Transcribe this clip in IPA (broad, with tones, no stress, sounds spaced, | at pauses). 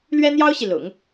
l ɥ ɛ˥ n̪ j ɑ˥ ʊ̯ ɕ i˨ l ʊ̰˨˩˦ ŋ